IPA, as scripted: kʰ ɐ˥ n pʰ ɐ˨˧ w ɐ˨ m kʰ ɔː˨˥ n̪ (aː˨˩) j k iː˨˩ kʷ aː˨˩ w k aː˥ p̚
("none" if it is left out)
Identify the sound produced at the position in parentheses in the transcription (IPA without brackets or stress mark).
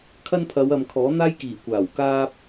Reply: aː˥